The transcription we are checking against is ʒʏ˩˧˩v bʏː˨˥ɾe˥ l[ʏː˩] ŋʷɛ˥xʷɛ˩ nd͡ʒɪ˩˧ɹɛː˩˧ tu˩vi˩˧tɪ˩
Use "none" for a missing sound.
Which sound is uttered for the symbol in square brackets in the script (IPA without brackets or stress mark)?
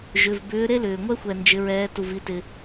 ʏː˩